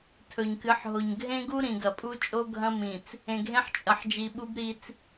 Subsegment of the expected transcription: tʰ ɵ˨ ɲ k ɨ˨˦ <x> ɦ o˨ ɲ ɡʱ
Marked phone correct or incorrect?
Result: incorrect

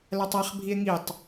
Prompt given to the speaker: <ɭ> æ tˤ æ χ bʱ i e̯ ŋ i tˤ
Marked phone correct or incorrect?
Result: incorrect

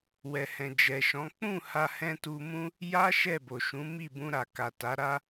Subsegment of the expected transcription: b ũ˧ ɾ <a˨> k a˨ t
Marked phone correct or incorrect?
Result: correct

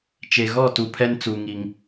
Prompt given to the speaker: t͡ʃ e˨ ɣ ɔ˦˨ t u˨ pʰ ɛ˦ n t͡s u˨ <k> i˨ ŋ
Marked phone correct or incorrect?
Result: incorrect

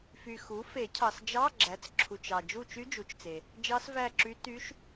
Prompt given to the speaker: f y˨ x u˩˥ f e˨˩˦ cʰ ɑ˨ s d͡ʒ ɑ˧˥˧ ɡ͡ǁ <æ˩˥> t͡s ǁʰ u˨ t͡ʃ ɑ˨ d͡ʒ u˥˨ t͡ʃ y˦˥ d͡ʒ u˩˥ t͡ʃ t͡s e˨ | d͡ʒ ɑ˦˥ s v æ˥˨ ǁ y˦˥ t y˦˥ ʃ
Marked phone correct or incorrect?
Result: correct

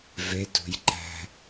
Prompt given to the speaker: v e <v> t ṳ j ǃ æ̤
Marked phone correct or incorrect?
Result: incorrect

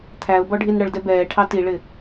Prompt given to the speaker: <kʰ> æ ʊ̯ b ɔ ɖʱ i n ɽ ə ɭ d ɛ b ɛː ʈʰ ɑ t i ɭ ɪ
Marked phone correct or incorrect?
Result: incorrect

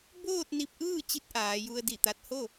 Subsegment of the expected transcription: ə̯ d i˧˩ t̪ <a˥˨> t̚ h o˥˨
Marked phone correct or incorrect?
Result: incorrect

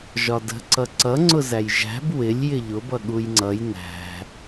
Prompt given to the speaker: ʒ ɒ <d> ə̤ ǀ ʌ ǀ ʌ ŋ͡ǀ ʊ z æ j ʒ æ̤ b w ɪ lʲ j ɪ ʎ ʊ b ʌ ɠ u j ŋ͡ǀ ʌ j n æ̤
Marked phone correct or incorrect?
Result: correct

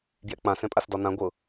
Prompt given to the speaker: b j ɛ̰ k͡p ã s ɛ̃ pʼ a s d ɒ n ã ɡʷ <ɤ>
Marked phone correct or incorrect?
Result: correct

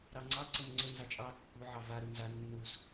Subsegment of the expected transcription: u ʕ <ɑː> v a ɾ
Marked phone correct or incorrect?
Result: incorrect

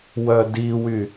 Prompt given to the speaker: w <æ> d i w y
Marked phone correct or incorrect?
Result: incorrect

